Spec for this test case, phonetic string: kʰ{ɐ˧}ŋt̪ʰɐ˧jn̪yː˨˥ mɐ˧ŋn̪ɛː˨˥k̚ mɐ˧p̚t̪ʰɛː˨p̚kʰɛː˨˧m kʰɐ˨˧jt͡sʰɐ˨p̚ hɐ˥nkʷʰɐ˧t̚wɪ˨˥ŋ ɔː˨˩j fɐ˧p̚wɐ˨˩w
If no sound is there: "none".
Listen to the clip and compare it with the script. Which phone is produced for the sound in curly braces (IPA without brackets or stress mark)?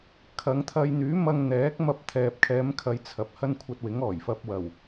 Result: ɐ˨˧